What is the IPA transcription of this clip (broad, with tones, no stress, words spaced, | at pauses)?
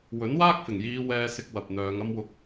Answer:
wɵ˨˥nwaː˥k̚fɪ˨˩ŋjiː˨˧ wɛː˧sɪ˧k̚ wɐ˨p̚n̪œː˨˧ŋɐ˥m wʊ˧k̚